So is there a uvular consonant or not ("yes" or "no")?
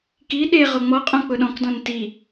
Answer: yes